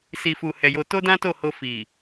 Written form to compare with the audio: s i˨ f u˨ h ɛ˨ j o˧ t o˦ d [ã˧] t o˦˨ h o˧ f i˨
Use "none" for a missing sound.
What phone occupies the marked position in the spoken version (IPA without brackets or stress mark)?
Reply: ã˦